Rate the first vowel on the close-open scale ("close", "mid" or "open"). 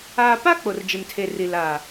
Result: open